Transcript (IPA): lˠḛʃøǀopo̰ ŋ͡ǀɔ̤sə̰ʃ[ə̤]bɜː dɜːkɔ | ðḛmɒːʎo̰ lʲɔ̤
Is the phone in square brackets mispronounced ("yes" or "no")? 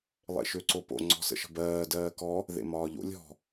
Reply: no